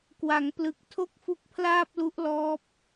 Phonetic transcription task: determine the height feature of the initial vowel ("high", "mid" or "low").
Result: low